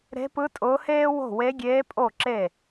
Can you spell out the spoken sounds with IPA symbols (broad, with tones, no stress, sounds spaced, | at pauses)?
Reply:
ɾ e̤˧˥ p ɯ˧˥ tʼ ʊː˧˥ h eː˥ w o̤˥˩ w e˧˥ ɡʲ eː˧˥ pʼ o˥˩ ǁ e˥˩